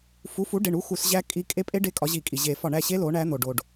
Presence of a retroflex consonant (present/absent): present